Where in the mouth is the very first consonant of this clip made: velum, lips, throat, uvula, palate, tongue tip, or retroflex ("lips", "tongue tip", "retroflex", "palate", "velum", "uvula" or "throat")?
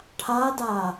retroflex